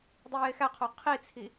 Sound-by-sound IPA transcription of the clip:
dˤ i j e x æ qʰ o qʰ i t͡sʰ i

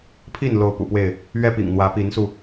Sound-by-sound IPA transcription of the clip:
pʰ i˥˨ n l o˨˦ ʊ̯ p ṵ˨˩ p w e˥˨ ɪ̯ | ɥ ɛ˦ p ḭ˨˩ ŋ n̪ w ä˨˦ p i˨˦ n s u˧

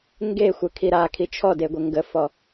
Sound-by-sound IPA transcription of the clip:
ŋ ɡ e xʷ ə kʰ i ɾ a kʰ i t͡ʃʰ ɔ d e ɡʷ ə ŋ ɡ ə f ɔ

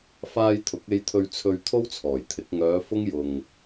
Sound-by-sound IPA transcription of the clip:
f aː˧ j t̪ʰ ʊ˨˥ k̚ e˧ j t̪ʰ ɵ˧ ɥ t͡sʰ ɵ˧ ɥ t̪ʰ o˥ w t͡sʰ ɔː˨˩ j t̪ʰ ɪ˨˥ k̚ ŋ œː˨˧ f ʊ˥ ŋ j ʊ˨ ŋ

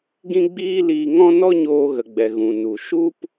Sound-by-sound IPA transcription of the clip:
ɡ ĩ˦ ɡ͡b iː˦ l iː˧ ŋ ɔ̃˦ n ɔ˦ ɲ oː˧ ɣ ə˨ ɡ͡b ɛ˨ ɣ ũ˨ n u˨ ʃ u˦ p

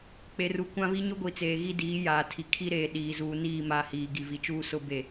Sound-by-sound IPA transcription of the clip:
k͡p e˨ r u˨ kʷ ã˦ β i˦ ɲ ʊ˦ ɡʷ i˨ t͡s eː˨ ɣ i˦ d iː˨˦ j aː˨ tʰ i˨ kʰ i˦ ɾ eː˨ ɗ iː˨ z uː˨ n iː˦˨ m a˨ h iː˨ ɡ i˨ v i˨ t͡ʃ uː˦ s ʊ˦ b e˦˨

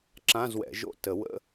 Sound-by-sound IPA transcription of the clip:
ǁ ã˧˥˧ z w ɛ̰˨˩˦ ʒ o̰˧˥˧ t ə˨˩˦ w ə̰˧˥˧

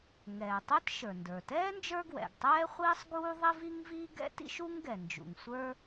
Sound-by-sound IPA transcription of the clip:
ŋ ɛː˩ tˤ ɛ˥ t ʃ ə˞˩ n d ə˞˩ t ɛː˥ n d͡ʒ ə˞˥ ɡ w ɛ̰˩ ɡ tˤ ɛː˥ χʷ iː˥ sˤ ɡ uː˥ ðˤ i˥ v i˥ ŋ v iː˥ ɡ ɛ̰˥ t ḭ˥ ʃ u˥ ŋ ɡ ɛ˩ n d͡ʒ ṵ˩ ŋ sʷ ə˞˥

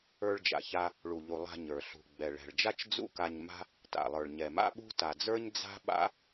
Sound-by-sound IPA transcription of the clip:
ə˞˧ ɭ d͡ʒ a̰˩ ç a˧ | ɭ u˩ ʎ u˩ lˠ a̤˧ ɲ ə˞˩ ɬ ṳ˩ ɡ͡b ɛ˩ ɭ ɛ̤˩ ɭ d͡ʒ a˥ t͡ʃ d͡z ṵ˥ k a˧ ɲ m a̤˥ | t a̰˩ lˠ ə˞˩ ɭ ɲ ɛ˩ m a̰˥ ɓ ṳ˥ t a˩ d͡z ə˞˥ ɲ d͡z a̤˥ ɓ a̰˥

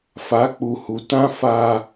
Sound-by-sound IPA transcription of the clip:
f a˨˦ k͡p u˨ h u˨ t ã˦ f a˦

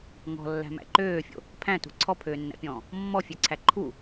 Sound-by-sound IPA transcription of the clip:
ŋ ɔ̤ lː æ̤ m æ̰ ǃ øː fʲ o̰ | pʰ æ̃ t ṳ ǀʰ ɔ pʰ øː nː æ̰ pʲ ɔ̃ː | mː ɔ fʲ ø ǀʰ æ ǃʰ u

